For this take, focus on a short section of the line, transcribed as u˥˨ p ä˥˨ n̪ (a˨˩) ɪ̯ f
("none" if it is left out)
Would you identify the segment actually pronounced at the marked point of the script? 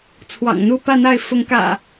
a˥˨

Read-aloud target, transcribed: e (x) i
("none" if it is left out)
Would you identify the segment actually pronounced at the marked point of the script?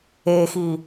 x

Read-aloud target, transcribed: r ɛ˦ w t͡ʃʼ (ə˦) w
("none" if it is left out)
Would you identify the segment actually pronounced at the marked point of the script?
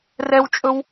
ɵ˦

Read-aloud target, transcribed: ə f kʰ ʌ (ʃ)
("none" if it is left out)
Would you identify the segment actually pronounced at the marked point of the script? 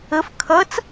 t͡s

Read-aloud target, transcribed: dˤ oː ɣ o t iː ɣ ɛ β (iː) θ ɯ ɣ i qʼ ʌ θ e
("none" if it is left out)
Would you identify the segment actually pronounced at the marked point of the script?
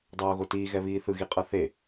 iː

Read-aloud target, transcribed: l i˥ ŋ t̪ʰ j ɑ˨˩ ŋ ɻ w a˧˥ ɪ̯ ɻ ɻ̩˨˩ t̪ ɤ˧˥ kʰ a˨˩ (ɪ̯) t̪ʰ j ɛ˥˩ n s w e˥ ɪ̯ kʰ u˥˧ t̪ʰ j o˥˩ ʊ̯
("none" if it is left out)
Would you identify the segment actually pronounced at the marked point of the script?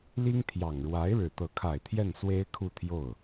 ɪ̯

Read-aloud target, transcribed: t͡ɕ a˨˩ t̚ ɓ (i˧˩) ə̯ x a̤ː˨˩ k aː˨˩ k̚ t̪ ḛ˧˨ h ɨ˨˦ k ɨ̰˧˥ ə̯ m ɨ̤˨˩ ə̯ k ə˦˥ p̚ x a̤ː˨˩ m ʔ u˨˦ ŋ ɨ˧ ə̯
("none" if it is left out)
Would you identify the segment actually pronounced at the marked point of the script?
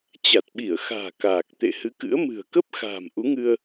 i˧˩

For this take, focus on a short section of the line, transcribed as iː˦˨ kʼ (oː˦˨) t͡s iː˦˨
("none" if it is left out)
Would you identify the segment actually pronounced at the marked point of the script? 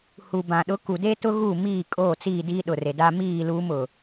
oː˦˨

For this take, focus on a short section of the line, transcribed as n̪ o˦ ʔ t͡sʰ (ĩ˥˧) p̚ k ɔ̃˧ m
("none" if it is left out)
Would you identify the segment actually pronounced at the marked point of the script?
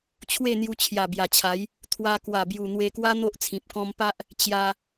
ĩ˨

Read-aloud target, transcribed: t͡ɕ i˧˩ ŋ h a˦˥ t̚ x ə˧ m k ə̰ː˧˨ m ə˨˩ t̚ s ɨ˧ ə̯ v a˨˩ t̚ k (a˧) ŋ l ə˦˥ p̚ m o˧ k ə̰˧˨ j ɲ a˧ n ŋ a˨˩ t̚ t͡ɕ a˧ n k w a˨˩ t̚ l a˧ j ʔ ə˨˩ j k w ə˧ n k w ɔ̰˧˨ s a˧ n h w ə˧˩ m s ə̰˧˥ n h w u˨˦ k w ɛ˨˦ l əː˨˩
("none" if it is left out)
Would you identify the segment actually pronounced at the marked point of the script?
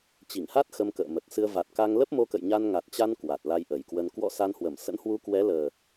a˧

